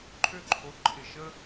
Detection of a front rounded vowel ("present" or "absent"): present